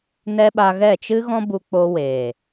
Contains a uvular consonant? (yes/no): no